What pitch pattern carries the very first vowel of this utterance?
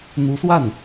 rising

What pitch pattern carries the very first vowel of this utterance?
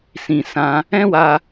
low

